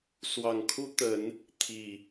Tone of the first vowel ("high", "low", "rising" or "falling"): low